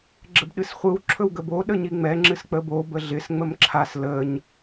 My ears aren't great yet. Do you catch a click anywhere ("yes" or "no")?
yes